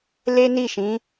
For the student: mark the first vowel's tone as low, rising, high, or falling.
high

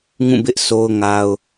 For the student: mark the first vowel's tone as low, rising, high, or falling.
falling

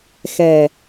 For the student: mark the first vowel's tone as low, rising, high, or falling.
low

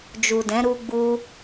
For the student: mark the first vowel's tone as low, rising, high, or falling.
low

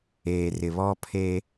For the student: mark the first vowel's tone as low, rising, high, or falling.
low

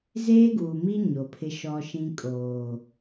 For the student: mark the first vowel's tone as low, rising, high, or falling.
high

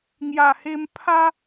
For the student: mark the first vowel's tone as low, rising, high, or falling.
low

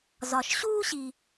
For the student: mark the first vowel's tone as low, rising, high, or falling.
low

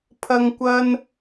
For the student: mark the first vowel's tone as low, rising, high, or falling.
high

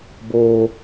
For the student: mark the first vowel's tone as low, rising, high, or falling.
high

